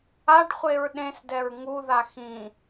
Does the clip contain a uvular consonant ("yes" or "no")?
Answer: yes